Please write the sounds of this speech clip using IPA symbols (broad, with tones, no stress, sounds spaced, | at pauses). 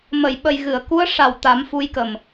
m ə˨˩˨ j ɓ ə˨˩ j ɣ ɨ˨˩˨ ə̯ k u˧˥ ə̯ ʂ a˨˩ w t̪ a˨˩˦ m f u˧˥ j k ə˨˩ m